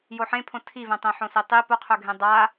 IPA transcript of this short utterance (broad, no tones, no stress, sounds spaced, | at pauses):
j o ħ ẽ pʰ õ tʰ i v ẽ tˤ ẽ ħ õ s e tˤ i p o qʰ ɵ ɡʱ ẽ dˤ a